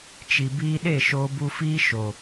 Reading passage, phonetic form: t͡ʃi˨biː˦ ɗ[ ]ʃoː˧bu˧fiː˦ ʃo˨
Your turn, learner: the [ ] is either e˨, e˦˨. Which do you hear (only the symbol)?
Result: e˦˨